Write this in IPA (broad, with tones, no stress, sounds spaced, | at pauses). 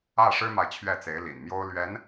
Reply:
ä˥˩ ʂ ɻ̩˥ m a˨ ɪ̯ t͡ɕʰ ɥ ɛ˥˩ t͡s e˧˥ ɪ̯ l ḭ˨˩ n m j o˥ ʊ̯ l ɥ ɛ˧˥ n